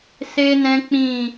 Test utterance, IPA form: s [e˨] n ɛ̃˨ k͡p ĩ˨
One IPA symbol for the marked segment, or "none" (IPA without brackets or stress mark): e˨